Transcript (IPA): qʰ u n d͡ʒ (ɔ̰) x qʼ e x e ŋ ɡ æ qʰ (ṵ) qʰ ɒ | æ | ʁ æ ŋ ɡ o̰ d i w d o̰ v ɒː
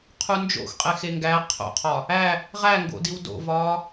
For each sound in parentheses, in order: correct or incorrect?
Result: incorrect: o̰, incorrect: o̰

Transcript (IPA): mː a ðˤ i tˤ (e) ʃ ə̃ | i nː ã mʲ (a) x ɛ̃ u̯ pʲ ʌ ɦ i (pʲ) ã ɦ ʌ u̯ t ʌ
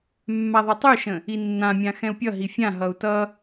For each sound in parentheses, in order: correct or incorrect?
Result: incorrect: y, incorrect: ã, incorrect: fʲ

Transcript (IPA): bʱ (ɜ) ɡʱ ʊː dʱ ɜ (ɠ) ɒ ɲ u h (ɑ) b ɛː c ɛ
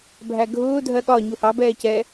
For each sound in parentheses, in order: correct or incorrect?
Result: incorrect: æ, correct, correct

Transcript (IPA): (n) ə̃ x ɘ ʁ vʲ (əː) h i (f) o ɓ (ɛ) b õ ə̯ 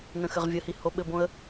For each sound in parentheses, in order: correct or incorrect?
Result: correct, incorrect: ə, incorrect: h, incorrect: ɘ

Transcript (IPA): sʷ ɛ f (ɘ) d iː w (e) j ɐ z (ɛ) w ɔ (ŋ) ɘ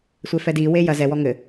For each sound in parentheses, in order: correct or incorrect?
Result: incorrect: ɛ, correct, correct, correct

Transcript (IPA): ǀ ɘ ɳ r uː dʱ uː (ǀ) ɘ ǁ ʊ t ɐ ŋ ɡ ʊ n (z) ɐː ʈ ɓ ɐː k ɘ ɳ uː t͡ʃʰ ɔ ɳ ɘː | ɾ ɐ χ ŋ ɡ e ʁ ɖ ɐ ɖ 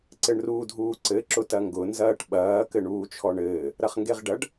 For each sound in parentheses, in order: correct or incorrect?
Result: correct, correct

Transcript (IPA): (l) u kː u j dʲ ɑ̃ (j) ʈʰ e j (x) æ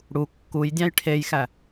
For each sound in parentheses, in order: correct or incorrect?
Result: incorrect: ɽ, correct, correct

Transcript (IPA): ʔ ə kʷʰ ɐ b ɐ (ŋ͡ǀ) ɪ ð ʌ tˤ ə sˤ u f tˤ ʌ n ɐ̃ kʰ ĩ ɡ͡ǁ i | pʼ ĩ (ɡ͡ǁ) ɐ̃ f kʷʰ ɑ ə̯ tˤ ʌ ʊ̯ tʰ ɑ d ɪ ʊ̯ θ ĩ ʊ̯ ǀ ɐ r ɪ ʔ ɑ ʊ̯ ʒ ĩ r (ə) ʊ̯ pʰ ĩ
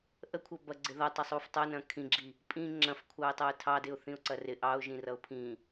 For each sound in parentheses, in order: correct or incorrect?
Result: incorrect: ɡ͡ǀ, incorrect: ŋ͡ǁ, incorrect: ʌ

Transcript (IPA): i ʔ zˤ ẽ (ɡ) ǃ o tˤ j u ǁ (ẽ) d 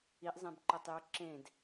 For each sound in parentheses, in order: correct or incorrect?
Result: incorrect: b, correct

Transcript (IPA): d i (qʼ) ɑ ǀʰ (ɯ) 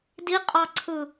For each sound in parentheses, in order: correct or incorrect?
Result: correct, correct

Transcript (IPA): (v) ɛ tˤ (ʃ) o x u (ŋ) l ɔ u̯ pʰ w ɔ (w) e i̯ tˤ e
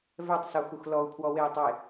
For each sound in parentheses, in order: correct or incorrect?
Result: correct, incorrect: s, incorrect: x, correct

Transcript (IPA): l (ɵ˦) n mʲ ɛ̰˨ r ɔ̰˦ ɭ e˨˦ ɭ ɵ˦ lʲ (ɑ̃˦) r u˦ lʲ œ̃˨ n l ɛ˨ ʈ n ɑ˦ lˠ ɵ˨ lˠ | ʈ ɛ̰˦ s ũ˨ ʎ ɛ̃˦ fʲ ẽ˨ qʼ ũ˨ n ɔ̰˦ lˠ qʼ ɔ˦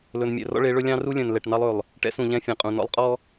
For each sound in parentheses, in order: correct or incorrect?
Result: incorrect: ɵ˨, correct

